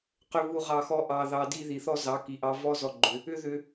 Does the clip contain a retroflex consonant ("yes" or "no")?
no